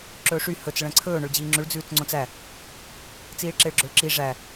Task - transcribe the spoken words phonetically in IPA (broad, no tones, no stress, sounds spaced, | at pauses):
ǁ ɵː ʂ y h ɵ t͡s ɭ ɛ̃ ǀʰ ɵː ɳ ɵ ɭ d͡ʑ iː ŋ͡ǁ ʉ ɭ d͡z ʉː t͡s ŋ͡ǀ õ t͡s æ | t͡s iː ɭ ǁ e ɭ ɡ͡ǁ ɵ ɭ ǁ i ʐ æ